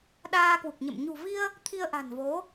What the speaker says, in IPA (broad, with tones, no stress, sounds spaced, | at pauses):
ɗ aː˧ k w u˨˩ k̚ ɲ ə̰˧˨ m ɲ ṳ˨˩ v i˧ ə̯ | t̪ʰ i˧ ə̯ ʔ a̤˨˩ n v o˨˦